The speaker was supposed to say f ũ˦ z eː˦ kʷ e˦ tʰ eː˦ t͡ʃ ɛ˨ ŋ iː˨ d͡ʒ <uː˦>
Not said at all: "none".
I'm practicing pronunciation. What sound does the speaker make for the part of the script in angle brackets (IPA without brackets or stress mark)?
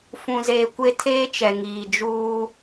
uː˦